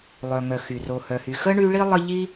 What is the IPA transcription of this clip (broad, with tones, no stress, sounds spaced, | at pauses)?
lˠ œ˩ ŋ œ˩ x y˩ r o˩ h œ˩ h y˩ x ə˥ ɳ y˦ ɭ i˥ lˠ ə˦ ʎ i˦